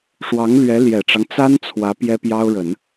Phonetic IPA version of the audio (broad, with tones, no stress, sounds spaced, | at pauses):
ʂ w ɑ˧˥ ŋ l ɥ ɛ˧˥ l j ɛ˨˩ ʈ͡ʂ ɑ˦ ŋ t͡s a˥ n t͡sʰ w ä˧˥ p j ɛ˥ p j ɑ˥ ʊ̯ ɻ ə˨˩˦ n